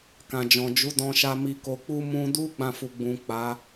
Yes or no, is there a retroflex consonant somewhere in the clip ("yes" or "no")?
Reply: no